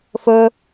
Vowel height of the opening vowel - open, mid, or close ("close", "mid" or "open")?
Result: close